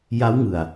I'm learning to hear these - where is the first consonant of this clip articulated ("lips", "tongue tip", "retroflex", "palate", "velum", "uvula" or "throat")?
palate